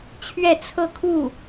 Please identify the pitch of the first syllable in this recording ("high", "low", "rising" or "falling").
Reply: falling